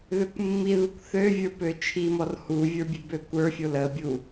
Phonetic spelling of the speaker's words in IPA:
ð ø kʷ mː i ð u kʷ θ ø vʲ ə˞ p ø t͡ʃʰ i m ɔ r h u vʲ ə˞ bʲ e b ø kʷ ə˞ fʲ o l ə bʲ u

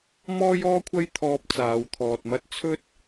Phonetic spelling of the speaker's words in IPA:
m ɔː˥ j ɔː˥ kʷʰ ɐ˥ j t̪ʰ ɔː˧ p̚ t͡s aː˨˧ w t̪ʰ ɔː˨ t̚ m ɐ˥ t̚ t͡sʰ ɵ˥ t̚

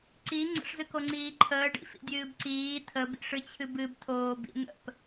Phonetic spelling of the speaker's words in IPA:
ǀ i ŋ͡ǀ ə̰ ʂ z ɨ k o ŋ͡ǀ iː ǃʰ əː ɖ ḭ f ḭ dʲ ɨː b ǀ iː tʰ ə b ḭ ʂ ɨ t͡ɕʰ ɨ b ɨ b tʰ oː b ḭ n̪ ə̰ p

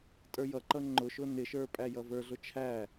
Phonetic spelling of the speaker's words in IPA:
tʼ ə˞ j ʌ ǃ ʌ ŋ͡ǃ ʊ ʃ ʊ n ɪ ʃ ə˞ pʼ æ j ʌ v ə˞ ɮ ʊ t͡ʃʰ æ

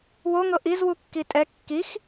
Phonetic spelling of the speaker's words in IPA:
w o ŋ ɤ ʔ i z w u kː i tʼ ɛ kː i x

